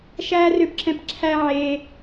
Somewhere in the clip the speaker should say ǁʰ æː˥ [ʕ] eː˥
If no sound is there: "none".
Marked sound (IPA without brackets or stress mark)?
ʕ